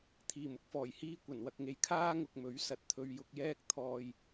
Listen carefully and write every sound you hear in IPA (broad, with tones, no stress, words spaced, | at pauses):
t̪ʰiː˨˩mʊ˨˥k̚fɔː˨˩jhiː˧ kʷɐ˨˩nwɐ˨k̚ŋe˨˧j kʰaː˥ŋʊ˧k̚mɵ˨˥ɥ sɐ˨t̚t̪ʰɵ˧ɥjʊ˧k̚jɛː˥k̚ t̪ʰɔː˧j